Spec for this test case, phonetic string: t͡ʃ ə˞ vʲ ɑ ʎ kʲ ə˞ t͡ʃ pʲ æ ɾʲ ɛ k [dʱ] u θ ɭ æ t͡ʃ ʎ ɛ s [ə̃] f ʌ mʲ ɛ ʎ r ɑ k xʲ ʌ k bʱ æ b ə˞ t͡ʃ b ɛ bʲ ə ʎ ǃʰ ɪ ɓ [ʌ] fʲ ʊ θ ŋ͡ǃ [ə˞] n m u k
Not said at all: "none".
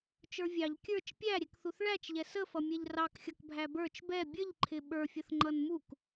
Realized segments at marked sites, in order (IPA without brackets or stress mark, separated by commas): θ, ə, ə˞, ʌ